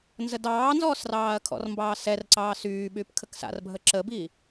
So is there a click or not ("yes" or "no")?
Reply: yes